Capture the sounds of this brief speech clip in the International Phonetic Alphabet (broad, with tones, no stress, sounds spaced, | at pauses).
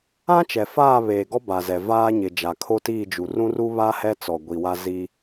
ã˦ t͡ʃ ɛ˨ f aː˦˨ β eː˨ ɡ ɔ˦ b a˨ z ɛ˨ v aː˦ ɲ ɪ˨ d͡ʒ a˨ kʰ o˦ t iː˦˨ d͡ʒ u˨ r ũ˦ r u˦ β aː˦ h ɛ˦ t͡s ɔ˨ ɡʷ i˨ w a˦ z i˦